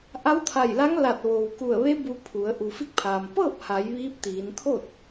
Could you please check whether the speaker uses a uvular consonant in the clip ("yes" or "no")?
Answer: no